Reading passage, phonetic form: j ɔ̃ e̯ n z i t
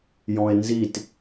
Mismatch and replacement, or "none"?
none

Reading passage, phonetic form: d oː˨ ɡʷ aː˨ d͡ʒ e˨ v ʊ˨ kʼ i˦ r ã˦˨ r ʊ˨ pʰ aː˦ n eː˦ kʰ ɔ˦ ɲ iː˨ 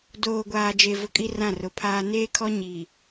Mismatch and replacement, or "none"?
none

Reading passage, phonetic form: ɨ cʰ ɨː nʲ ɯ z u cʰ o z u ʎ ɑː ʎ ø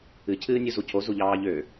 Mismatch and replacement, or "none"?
ɯ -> u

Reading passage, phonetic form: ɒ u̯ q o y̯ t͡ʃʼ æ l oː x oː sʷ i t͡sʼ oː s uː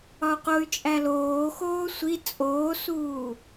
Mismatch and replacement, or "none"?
none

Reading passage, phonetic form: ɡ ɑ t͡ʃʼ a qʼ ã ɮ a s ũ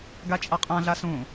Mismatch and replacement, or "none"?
ɑ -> a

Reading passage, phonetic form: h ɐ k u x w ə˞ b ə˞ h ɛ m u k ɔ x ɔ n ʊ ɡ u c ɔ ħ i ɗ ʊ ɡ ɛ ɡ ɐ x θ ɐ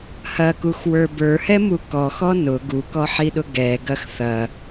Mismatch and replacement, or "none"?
c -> k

